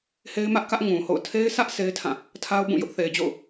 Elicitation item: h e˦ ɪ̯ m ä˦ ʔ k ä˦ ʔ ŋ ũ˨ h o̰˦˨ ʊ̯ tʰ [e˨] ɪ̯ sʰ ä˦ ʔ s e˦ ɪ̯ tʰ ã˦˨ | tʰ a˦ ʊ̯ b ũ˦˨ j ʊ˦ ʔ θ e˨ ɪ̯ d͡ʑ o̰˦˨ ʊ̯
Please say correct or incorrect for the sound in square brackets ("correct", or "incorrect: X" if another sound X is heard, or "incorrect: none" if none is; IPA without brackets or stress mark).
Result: incorrect: e˦